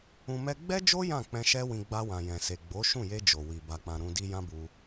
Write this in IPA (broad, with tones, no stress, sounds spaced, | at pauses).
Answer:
ũ˧ m ɛ˦ ɡ͡b ɛ˦ d͡ʒ o˦ j ã˦˨ k͡p ɛ̃˧ ʃ ɛ˦ w ĩ˧ ɡ͡b a˧ w ã˨ j ɛ̃˨ s e˨ ɡ͡b o˨˦ ʃ ũ˦˨ j e˧ d͡ʒ o˨ w i˨ b a˨ k͡p ã˨ ɾ ũ˧ d i˧ j ã˦ b u˧